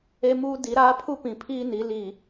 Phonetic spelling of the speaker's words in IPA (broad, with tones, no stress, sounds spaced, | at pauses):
e˦ m uː˦ d i˨˦ ɾ aː˦ pʰ u˦ p ĩ˨ pʰ iː˦ n i˨˦ l i˨